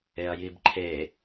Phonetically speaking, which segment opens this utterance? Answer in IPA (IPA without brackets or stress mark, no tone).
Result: e